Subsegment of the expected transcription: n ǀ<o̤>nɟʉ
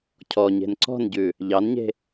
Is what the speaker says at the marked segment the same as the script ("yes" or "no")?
no